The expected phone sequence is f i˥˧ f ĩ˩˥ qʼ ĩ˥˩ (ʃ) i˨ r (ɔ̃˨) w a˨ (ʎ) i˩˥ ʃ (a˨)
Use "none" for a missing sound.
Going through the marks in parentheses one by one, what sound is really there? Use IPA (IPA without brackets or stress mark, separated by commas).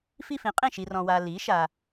ʃ, ɔ̃˨, l, a˨